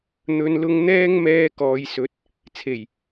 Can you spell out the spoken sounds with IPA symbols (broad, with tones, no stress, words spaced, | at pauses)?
n̪ɵ˨˧nlʊ˧ŋ n̪ɛː˥ŋmɛː˧ kɔː˨˧jsɵ˨˥t̚ | t͡sʰe˨˩j